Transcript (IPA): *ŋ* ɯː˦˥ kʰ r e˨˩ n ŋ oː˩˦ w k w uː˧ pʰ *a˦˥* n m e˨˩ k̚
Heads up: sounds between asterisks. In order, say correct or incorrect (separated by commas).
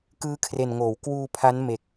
incorrect, correct